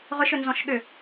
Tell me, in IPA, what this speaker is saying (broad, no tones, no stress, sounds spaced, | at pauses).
ʁ ʏ ʃ ʏ n z ɔ̃ ʃ ɠ ʏ